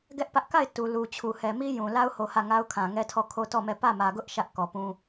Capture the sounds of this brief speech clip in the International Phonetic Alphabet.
ɡ ɛ˦ ʔ p ä˦ ʔ k a˦˨ ɪ̯ t u˨ l u˨ t͡ɕʰ u˨ h ɛ˨ m i˦ j ũ˨ l a˦ ʊ̯ h o˨ h ä˦˨ ŋ a˦ ʊ̯ kʰ ã˨ ŋ ɛ˦ tʰ ɔ˦˨ kʰ o˦ t ɔ˦˨ m ɛ˦˨ p ä˦˨ m ä˨ ɡ ʊ˦ ʔ ʃ ä˦ ʔ k ɔ˨ p ũ˦

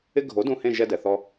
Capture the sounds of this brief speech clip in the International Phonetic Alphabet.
ɪ˦ ɡʱ o˨˥ d ũ˦˨ h ẽ˦˨ ʒ ɛ˦ d ɛ˨ θ ɔ˦

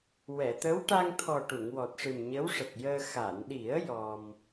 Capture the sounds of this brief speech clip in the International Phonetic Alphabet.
w ɛ˨˩˨ t̪ ə˧˥ w ʈ a˧ ŋ t̪ʰ ɔ˨˩ ʈ u˨˩˨ ŋ w ɔ˨˩ t̚ ʂ ɨ˨˩ m ɲ ə˧˥ w ʂ ə˨˩ k̚ j əː˧ x a˨˩˨ n ɗ i˨˩˦ ə̯ j ɔ˧ m

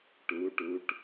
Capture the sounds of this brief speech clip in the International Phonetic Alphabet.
ʈ u˩˧ ʈ u˩˧ ʈ

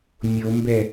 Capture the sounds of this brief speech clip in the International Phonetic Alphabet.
mʲ o m b ɛ

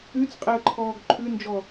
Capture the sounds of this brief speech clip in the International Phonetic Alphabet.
ʉ t͡s qʼ e ə̯ ǃʰ ɔː ɡ ǃʰ ʉ n d͡ʒ ɔ

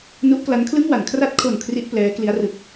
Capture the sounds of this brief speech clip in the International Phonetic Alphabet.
n u˦˥ ʔ k l a˦˥ n kʰ l ɯ˥˩ ŋ w a˩˦ n kʰ r a˦˥ t̚ kʰ o˨˩ n kʰ r i˥˩ ʔ p l ɛː˦˥ k l i˦˥ a̯ r ɯ˨˩ k̚

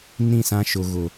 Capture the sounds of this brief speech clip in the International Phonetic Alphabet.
n ĩ˦˨ s ã˦ ʃ ʊ˨ ɣ ʊ˨

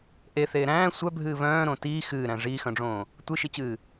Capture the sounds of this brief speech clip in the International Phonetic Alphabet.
ʔ e θ eː ɾ æ̃ː sʷ œ bʱ ɨː β œ̃ː ɾ õ t iː x ɨː ɾ æ̃ ʐ iː x œ̃ ɖ͡ʐ õː | tʷ ɨ ʃ i t͡ɕ ɨː

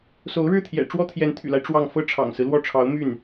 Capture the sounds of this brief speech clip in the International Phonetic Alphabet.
s o˧˥ ʊ̯ ɻ ɻ̩˥˩ t̪ʰ j ɛ̰˨˩ ʈ͡ʂ w ɔ˥ t̪ʰ j ɛ˧˥ n t̪ʰ y̰˨˩ l a˦ ɪ̯ ʈ͡ʂ w ɑ˥˧ ŋ f ɤ˥˩ ʈ͡ʂʰ ɑ̰˨˩ ŋ s ɹ̩˦ l w ɔ˥˩ ʈ͡ʂʰ ɑ˧˥ ʊ̯ m y˥˩ n

